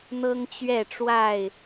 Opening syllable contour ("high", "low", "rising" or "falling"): high